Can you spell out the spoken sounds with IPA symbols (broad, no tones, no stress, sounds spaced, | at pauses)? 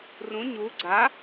r ũ ɲ u ɡ͡ǀ a